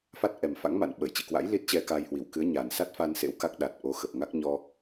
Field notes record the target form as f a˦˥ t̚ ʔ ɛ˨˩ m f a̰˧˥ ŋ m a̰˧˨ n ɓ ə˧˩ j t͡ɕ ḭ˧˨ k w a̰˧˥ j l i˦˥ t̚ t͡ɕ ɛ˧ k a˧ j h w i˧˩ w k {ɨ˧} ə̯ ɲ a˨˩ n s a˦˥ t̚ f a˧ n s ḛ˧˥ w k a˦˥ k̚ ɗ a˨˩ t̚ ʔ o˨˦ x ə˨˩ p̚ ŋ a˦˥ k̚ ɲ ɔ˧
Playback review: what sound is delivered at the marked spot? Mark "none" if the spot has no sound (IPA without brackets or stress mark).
ɨ˨˦